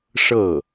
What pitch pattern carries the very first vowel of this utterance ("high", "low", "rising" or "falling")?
falling